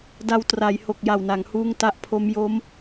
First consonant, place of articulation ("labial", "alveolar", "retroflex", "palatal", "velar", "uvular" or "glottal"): alveolar